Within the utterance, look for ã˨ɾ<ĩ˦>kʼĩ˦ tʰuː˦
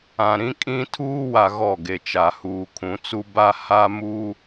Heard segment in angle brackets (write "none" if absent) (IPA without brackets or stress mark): ĩ˦